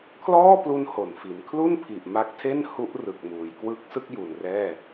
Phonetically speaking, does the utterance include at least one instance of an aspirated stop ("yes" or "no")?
yes